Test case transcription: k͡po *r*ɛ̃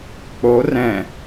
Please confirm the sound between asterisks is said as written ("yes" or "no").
yes